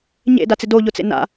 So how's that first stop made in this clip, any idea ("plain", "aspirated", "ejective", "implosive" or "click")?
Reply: plain